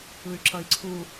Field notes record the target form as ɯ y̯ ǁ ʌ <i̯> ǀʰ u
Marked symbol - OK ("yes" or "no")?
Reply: yes